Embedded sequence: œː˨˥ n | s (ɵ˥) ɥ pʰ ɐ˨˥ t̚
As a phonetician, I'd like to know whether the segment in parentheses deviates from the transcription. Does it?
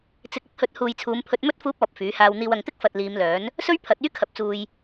no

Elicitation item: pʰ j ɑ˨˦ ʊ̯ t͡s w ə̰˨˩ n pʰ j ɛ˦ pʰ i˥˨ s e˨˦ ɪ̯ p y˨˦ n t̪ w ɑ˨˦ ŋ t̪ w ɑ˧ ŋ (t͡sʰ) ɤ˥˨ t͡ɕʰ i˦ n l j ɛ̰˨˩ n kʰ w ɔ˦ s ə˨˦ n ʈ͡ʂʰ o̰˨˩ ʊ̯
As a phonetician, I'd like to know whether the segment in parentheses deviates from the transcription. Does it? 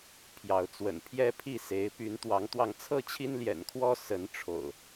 no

